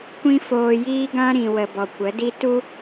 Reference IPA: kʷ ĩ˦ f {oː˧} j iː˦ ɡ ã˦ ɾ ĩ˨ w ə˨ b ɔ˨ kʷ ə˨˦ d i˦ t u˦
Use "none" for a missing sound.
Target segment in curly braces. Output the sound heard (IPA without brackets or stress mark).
oː˧